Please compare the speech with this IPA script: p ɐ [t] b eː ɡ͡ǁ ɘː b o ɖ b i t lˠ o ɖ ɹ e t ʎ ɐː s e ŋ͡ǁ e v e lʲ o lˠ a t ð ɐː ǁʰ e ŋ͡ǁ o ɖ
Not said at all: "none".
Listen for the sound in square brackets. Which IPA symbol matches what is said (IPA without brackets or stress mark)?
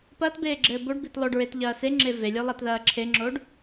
t